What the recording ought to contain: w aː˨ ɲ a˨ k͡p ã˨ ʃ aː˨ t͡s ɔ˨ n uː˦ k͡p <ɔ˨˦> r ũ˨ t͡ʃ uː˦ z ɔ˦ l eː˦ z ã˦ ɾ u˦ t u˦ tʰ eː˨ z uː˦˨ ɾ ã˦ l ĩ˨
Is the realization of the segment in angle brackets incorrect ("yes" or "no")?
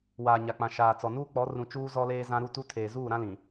no